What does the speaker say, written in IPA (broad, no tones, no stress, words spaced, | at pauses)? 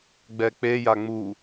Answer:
ɡ͡bɛk͡peja ŋ͡mu